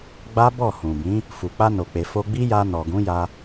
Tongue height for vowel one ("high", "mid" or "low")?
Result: low